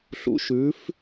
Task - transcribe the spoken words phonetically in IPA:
ɬ ṵ˩˥ ʃ ʉː˩˥ f

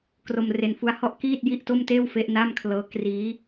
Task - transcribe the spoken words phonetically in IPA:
k r o˧ m r e˧ n f u˦˥ a̯ h ɔ˥˩ ʔ k iː˥˩ t̚ j i˥˩ ʔ t o˥˩ m t eː˥˩ w f e˦˥ ʔ n a˥˩ m kʰ l ɤː˦˥ k r iː˦˥

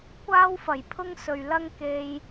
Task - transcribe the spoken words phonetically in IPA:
kʷ aː˥ w f ɐ˨˩ j pʰ ʊ˥ ŋ s ɵ˨ ɥ l ɐ˥ ŋ k e˧ j

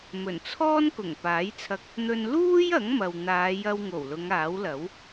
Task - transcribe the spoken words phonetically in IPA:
m ɵ˨˩ n t͡sʰ ɔː˥ n k ʊ˨˩ ŋ p aː˨˥ j t͡sʰ ɐ˧ k̚ | n̪ ɵ˥ n l uː˥ j ɐ˨˥ ŋ m ɐ˨ w n̪ aː˨˧ j ɐ˧ w ŋ o˨˩ w l ʊ˨˧ ŋ aː˨˥ w l ɐ˨˥ w

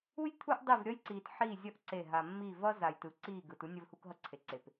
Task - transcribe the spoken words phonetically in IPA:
u˦ j t̪ʰ u˦ ʔ dˤ i˦˨ v ɾʲ ʌ˦ j ǀ iː˨ t ħ i˦˨ zʲ ʌ˦ ʔ ǀ e˦˨ ɦ a˨ mː i˦˨ v ʌ˦ z a˨ j t ɯ˨ ǀ iː˦˨ ɡ ɯ˨ t u˦ nʲ ʌ˦ v h u˦ k ɦ ʌ˦ ǀʰ e˨ ǀ e˨ p

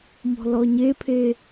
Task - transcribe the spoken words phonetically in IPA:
m ɔ̤ l ɔ ɲ e pʰ e

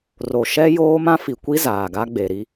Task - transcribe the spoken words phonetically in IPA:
r o˨ ʃ ɛ˦ j oː˦ m ã˦ f i˨ kʷ i˦ z aː˨ ɡ a˦ ɡ͡b e˨ ɾ i˦

